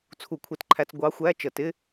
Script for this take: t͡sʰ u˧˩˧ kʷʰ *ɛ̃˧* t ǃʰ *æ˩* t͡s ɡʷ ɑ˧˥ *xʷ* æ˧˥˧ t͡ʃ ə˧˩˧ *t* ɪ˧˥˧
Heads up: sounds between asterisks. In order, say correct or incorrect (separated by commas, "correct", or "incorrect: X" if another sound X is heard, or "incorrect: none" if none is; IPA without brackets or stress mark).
incorrect: ɛ˧, incorrect: æ˧, correct, correct